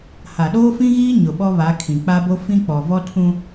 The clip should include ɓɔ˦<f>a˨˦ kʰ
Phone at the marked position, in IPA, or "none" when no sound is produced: β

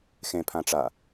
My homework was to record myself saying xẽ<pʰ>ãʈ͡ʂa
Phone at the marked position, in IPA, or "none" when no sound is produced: pʰ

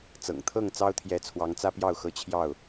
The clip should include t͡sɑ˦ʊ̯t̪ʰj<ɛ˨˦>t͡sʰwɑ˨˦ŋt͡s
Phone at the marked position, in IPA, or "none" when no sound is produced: ɛ˨˦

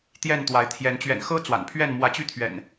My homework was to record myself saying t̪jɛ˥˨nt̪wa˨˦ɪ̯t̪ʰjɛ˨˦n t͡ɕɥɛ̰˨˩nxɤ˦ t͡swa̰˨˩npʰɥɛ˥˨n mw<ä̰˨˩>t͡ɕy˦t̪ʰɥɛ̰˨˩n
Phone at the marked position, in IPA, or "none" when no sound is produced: ä˨˦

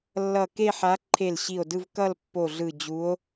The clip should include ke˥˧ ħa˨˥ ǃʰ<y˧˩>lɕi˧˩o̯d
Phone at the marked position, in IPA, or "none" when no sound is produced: e˧˩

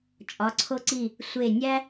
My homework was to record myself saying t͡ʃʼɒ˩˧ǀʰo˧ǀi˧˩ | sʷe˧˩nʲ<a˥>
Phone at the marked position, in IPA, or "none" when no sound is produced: æ˥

